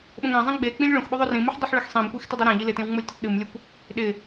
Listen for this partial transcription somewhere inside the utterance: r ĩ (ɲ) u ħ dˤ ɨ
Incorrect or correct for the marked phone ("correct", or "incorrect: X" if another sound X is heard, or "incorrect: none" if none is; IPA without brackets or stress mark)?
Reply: incorrect: m